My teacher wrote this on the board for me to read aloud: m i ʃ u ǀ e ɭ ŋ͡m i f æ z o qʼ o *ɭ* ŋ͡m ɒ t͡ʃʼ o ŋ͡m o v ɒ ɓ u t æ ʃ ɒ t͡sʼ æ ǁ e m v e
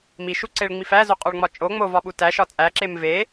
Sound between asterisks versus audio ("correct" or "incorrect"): correct